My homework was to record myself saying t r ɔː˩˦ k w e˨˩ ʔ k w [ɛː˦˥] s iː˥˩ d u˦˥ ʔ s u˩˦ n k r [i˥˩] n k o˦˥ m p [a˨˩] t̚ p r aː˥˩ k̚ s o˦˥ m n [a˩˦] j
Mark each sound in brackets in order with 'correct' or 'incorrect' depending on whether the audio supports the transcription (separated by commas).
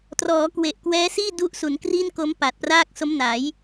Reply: correct, correct, correct, correct